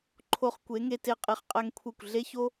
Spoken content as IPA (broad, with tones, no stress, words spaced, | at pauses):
ǃʰo˧χkʷe˨˦ŋe˧te˧ qʼe˧χqʼæ˦ŋkʷʰe˦˨kʷ ɮe˦ço˦